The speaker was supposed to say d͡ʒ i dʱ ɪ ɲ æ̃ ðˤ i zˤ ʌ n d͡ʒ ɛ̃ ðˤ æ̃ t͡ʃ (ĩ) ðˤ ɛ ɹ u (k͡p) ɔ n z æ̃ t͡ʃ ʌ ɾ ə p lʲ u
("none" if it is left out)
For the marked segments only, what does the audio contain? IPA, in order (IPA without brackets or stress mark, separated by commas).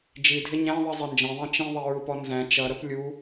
ĩ, p